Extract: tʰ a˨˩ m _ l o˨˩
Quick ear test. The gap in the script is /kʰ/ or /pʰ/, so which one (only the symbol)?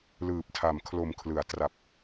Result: kʰ